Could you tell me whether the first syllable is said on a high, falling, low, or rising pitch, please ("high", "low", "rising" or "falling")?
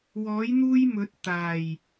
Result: rising